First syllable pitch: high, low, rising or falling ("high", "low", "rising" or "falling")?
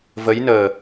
rising